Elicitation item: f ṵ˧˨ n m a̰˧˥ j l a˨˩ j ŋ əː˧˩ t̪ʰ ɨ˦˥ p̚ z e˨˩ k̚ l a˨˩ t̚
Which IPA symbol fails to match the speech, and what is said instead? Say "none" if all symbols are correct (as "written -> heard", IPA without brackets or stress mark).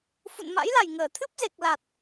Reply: none